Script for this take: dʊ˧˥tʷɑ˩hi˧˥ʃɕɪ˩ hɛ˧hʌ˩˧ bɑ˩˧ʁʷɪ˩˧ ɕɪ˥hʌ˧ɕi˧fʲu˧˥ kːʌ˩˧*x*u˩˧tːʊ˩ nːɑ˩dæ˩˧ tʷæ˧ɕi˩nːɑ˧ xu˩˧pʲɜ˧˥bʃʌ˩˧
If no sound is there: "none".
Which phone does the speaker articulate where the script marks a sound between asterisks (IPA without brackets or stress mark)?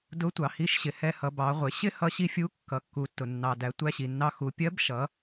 kː